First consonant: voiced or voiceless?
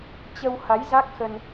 voiceless